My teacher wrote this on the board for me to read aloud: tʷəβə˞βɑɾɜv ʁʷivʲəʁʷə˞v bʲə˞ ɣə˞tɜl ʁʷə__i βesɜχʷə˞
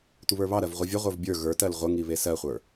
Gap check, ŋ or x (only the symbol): ŋ